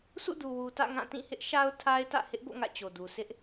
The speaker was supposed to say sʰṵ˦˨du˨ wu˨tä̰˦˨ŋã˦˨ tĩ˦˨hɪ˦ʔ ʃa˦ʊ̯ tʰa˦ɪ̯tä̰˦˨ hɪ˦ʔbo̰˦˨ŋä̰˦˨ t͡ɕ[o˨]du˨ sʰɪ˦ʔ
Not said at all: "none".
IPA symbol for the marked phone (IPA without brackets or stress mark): o˨